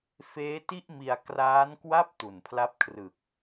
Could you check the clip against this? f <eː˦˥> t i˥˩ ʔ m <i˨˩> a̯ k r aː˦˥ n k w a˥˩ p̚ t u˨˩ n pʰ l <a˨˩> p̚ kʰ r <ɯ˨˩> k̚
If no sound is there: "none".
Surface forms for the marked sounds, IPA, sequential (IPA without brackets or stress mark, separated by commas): eː˦˥, i˧, a˦˥, ɯ˨˩